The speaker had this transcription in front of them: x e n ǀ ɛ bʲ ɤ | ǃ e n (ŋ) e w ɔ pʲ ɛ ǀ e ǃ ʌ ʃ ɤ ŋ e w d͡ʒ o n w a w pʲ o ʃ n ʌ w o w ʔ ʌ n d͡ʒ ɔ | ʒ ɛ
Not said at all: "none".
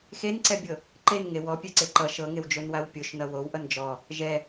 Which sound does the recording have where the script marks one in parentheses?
ŋ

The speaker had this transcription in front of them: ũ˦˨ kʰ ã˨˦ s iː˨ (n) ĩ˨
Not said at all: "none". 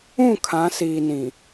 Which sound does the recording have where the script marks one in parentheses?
n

